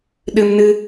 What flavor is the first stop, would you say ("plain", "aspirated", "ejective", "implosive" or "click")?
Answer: implosive